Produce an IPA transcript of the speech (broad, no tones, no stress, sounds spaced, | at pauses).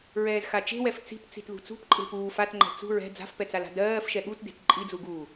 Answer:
ɹ ɛː z x a t͡ʃ e̤ w ɛ f t͡s i̤ p t͡s i̤ t ð ṳ t͡s ṳ p ǃʼ e̤ p uː f a t ŋ͡ǃ ɛ̤ t͡s ṳ ɹ ɛ̤ d͡z a̤ f p ɛ t͡s a l a̤ d ɜː f ʃ ɛ ɠ u t d e̤ t ǃʼ i d͡z u ɡ uː